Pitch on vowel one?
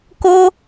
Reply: high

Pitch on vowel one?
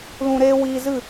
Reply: low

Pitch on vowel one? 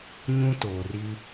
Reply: high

